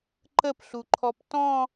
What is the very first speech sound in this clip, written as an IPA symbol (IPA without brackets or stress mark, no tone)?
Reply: ǃ